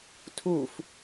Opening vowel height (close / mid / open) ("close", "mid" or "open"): close